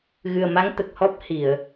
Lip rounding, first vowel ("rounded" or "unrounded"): unrounded